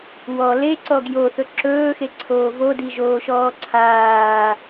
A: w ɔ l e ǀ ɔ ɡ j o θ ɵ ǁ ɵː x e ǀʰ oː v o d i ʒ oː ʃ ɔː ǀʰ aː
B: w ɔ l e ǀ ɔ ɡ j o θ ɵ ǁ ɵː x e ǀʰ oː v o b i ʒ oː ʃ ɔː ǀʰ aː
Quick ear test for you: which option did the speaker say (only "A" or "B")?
A